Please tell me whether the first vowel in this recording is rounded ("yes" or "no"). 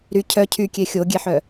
yes